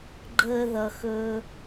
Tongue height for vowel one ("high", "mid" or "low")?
mid